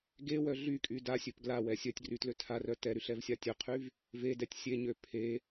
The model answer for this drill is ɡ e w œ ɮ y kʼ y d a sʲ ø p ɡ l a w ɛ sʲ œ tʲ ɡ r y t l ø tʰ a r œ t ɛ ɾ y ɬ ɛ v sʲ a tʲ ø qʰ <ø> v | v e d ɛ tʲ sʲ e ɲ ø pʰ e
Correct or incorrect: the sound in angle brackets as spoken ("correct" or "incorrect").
incorrect